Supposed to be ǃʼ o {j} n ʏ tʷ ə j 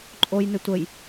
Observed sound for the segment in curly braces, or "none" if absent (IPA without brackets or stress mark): j